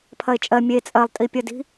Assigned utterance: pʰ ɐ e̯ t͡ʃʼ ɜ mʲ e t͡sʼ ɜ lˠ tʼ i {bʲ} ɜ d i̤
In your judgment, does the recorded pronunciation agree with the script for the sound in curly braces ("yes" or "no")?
no